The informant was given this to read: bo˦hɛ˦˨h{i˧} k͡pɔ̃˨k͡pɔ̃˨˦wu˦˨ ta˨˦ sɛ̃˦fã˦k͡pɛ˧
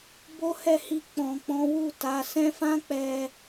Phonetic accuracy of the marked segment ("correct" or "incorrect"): correct